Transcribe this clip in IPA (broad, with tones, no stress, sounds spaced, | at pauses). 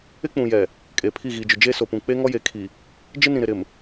ɪ˦ k͡p ũ˨ j ɛ˨ | kʼ eː˨ pʰ i˦˨ ɣ iː˨ d͡ʒ ʊ˨ d͡ʒ eː˦ s o˨ p ũ˨ k͡p e˦ ŋ ɔ˦ j e˨ kʰ i˨ | d͡ʒ ɪ˦ n ĩ˨ ɾ ɪ˨ ɾ ɪ˨ m